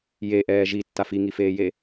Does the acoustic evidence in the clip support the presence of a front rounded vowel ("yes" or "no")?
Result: no